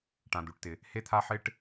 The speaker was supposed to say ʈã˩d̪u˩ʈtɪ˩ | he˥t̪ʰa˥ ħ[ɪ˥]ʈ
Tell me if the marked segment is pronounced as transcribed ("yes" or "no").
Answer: yes